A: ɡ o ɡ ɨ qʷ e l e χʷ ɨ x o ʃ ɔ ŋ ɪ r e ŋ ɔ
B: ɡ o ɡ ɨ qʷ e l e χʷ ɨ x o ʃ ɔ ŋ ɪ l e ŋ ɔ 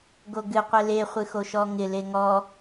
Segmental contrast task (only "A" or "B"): B